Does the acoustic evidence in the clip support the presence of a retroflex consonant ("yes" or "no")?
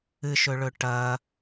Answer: yes